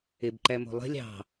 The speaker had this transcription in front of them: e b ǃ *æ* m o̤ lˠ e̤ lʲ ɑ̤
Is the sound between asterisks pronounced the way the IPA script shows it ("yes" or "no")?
yes